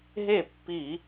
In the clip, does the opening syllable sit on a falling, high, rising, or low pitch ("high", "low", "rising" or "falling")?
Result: falling